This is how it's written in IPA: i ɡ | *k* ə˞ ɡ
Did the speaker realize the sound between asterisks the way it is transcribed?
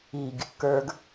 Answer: yes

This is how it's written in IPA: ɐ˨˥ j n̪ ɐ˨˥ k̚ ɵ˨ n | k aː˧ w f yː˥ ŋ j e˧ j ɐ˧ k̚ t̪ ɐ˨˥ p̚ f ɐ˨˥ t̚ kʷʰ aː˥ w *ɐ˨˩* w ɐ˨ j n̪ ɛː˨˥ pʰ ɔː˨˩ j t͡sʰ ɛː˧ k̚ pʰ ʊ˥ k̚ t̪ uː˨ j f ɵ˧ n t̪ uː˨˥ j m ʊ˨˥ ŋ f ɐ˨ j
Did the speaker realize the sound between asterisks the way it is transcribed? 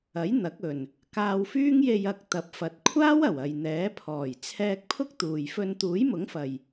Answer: yes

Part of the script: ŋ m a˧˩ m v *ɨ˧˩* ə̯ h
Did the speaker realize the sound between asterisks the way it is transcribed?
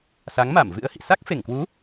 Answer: no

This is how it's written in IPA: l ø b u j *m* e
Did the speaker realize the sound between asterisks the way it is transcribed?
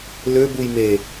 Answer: yes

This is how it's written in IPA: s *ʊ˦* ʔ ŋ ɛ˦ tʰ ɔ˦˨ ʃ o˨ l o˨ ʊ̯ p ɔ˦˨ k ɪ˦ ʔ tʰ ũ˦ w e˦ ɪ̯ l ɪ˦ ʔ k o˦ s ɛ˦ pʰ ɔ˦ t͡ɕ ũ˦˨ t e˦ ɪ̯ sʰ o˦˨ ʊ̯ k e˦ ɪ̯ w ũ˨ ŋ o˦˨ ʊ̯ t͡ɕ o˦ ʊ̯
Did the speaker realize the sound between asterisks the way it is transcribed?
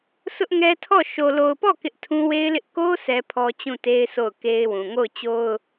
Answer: yes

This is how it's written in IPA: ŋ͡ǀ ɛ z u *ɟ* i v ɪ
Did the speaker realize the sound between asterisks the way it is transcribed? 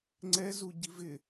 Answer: yes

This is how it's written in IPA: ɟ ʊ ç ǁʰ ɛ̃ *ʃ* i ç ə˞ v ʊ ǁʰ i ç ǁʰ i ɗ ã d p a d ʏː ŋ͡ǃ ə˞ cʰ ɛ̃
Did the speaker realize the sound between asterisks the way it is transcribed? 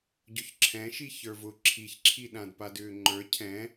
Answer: yes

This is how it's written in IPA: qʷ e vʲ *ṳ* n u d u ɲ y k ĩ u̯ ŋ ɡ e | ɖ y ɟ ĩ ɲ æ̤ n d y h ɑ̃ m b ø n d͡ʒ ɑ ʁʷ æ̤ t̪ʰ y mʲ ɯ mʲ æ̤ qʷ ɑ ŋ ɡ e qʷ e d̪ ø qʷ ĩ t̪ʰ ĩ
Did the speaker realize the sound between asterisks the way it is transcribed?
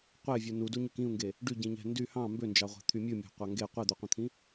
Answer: no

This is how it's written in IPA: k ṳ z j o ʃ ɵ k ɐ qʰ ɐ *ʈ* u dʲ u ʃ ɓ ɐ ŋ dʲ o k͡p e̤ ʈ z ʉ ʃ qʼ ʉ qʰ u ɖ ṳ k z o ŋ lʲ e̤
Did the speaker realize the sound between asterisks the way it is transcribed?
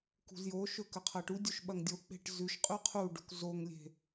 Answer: yes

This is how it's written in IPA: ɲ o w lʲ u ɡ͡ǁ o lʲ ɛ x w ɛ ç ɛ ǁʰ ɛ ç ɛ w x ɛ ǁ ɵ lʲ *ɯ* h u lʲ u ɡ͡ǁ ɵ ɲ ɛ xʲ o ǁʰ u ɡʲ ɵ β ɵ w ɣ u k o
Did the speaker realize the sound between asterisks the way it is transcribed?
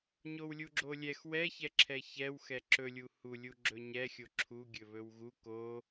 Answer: no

